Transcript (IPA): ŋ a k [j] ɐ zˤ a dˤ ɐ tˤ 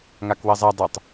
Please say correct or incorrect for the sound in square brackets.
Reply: incorrect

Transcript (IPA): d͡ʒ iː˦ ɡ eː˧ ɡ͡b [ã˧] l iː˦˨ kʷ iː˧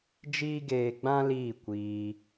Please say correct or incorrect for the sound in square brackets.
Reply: incorrect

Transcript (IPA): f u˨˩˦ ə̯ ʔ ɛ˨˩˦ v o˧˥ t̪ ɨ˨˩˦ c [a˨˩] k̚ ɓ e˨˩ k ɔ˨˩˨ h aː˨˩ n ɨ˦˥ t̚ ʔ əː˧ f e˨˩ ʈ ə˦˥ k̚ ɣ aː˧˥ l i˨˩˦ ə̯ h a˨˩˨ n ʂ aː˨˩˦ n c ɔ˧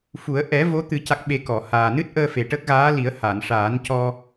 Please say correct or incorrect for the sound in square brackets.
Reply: correct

